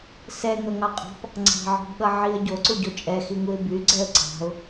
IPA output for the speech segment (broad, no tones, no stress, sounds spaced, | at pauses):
s ɛ ŋ ʌ ŋ ɑ qʼ ɑ̤ p | ŋ͡ǀ ɑ̤ ʕ ɔ̤ b ɠ ʌ ʕ i ə̯ ɟ o ǀ u ɟ o t͡ʃʼ ɛ x i ŋ u ɪ̯ b y ɡ͡ǀ ɛ ə̯ ǀ ɑ̤ ʊ̯